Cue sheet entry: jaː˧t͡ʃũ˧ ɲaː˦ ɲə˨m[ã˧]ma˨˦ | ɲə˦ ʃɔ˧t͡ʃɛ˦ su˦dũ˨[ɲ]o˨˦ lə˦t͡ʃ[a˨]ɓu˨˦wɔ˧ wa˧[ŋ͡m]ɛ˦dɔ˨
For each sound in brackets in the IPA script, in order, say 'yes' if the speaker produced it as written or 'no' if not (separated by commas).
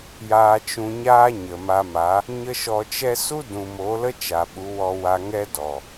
no, no, yes, no